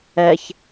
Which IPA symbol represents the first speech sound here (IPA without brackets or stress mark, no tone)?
ɛ